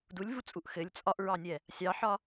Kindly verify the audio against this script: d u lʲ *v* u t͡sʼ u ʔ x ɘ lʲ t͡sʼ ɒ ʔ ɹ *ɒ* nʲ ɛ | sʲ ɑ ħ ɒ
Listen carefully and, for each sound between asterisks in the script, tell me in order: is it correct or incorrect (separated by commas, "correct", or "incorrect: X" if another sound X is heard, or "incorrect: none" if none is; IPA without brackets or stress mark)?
correct, incorrect: ɑ